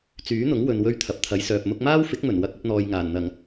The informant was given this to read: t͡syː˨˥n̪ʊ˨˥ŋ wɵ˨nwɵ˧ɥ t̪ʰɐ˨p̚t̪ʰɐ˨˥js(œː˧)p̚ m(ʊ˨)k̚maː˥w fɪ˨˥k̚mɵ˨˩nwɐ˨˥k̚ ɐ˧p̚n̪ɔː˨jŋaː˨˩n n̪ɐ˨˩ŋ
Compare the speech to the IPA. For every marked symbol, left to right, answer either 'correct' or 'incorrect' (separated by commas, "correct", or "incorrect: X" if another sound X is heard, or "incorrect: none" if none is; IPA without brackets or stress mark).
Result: incorrect: œː˨, incorrect: ʊ˧